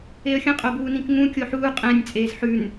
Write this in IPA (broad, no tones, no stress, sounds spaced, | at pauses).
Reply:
e ə̯ xʲ ə̃ qʼ o b uː n ĩ k ŋ ũ kʲ o ħ uː qʼ ɛ̃ nʲ t͡sʼ eː z ħ ʉ n